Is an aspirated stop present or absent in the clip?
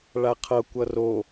present